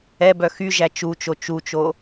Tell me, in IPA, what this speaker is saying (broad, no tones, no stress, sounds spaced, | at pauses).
ɛ b œ x y ʒ æ t͡ʃ u t͡ʃ o t͡ʃ u t͡ʃ o